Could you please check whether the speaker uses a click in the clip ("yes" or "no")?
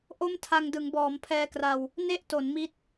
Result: no